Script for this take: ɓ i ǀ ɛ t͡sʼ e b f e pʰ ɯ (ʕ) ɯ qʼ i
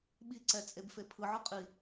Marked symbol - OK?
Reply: yes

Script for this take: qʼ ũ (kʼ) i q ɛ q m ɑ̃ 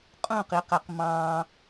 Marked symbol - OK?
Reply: no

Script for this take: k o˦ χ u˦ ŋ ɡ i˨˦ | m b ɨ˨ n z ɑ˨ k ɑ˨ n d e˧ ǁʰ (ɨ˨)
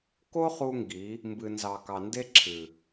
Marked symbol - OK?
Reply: yes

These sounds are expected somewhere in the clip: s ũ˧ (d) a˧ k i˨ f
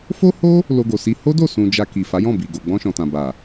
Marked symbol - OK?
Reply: no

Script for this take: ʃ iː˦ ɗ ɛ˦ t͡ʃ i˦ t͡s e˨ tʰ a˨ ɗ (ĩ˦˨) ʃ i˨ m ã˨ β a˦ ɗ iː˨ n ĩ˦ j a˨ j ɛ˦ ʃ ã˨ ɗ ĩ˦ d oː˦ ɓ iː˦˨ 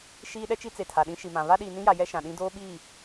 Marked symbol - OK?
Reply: no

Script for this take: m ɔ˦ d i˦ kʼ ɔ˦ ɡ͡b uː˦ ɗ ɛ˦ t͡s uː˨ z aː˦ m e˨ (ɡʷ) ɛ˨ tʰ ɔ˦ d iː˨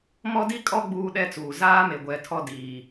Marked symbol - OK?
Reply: yes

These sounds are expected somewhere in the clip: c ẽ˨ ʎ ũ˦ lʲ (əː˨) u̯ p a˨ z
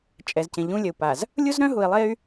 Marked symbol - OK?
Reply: no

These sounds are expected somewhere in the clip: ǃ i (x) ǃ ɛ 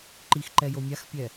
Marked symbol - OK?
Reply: yes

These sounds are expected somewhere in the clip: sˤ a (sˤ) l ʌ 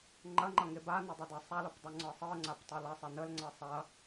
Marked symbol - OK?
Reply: no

